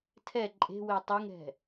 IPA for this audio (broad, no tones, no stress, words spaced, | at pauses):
tʰɛ ǃʼe̤we tˤeŋɾɛ̤